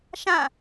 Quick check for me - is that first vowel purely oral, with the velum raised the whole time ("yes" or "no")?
no